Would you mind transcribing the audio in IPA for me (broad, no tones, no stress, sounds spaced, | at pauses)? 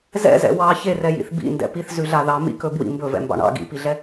z ɛ̰ z ɛ̰ w ɑ ç e r ɛ j ḭ θ b ḭ n d ɛ̰ p i θ z ʉ ɮ a ð ɑ m ḭ k ɵ b w ḭ m b ɵ v ɛ̰ m b ɑ̰ ɳ ɑ̰ ɡ ḭ p i ɮ ɛ